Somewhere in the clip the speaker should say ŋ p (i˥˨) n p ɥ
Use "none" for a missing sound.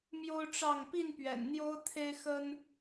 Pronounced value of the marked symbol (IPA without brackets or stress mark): i˥˨